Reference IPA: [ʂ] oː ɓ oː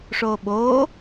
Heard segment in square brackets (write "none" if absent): ʂ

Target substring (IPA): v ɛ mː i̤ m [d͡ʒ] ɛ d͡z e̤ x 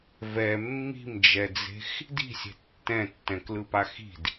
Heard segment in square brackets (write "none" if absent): d͡ʒ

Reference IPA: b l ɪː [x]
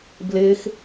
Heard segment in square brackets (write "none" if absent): x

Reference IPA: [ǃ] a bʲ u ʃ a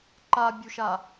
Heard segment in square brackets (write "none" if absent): ǃ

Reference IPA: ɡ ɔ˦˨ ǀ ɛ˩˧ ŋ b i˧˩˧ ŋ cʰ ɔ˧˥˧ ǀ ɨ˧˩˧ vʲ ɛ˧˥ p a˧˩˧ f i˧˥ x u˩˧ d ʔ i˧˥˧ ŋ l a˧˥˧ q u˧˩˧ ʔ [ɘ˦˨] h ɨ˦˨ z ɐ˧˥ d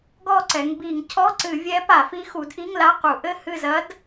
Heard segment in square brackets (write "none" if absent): ɘ˦˨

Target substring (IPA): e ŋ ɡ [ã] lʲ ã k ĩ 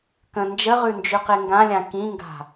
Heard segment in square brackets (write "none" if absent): ã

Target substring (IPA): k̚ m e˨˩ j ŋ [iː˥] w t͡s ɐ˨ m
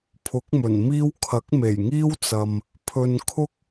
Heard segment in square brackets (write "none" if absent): iː˥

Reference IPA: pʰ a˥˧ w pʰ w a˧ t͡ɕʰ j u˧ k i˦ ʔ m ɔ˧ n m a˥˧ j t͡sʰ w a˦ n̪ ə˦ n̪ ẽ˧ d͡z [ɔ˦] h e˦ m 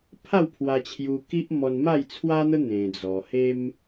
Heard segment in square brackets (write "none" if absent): ɔ˧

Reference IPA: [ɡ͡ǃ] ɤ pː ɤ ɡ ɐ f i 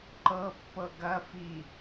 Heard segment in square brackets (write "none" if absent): ǃ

